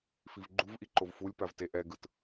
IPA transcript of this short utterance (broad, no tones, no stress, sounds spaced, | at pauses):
f i v ɡ͡ǃ u v ʔ i ǃ o v f u lʲ p a v t e ʔ ɛ ɡ ɯ t